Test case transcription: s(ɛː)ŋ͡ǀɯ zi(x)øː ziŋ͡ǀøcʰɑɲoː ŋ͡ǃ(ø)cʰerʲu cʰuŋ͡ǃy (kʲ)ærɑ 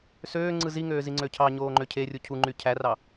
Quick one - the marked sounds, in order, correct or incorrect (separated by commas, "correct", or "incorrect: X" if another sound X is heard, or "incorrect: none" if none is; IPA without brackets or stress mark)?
incorrect: øː, incorrect: ŋ, correct, incorrect: cʰ